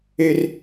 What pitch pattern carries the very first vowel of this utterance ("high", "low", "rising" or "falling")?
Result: high